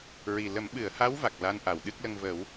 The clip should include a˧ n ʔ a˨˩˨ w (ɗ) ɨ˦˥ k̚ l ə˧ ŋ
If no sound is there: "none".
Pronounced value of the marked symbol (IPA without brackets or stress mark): ɗ